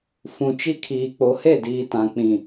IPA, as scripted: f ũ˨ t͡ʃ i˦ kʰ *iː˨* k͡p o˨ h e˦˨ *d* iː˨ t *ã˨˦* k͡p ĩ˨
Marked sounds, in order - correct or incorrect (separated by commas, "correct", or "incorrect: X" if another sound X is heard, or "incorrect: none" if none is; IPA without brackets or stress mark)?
correct, correct, incorrect: ã˨